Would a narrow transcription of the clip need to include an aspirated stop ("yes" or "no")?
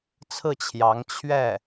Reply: yes